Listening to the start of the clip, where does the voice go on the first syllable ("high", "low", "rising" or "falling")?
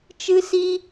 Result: high